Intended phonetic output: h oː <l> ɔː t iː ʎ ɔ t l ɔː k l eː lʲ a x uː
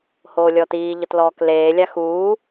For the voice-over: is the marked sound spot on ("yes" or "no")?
no